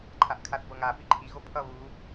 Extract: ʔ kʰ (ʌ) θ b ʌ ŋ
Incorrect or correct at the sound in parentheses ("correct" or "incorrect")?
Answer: incorrect